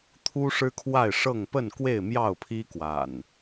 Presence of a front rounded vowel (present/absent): absent